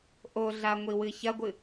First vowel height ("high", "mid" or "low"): mid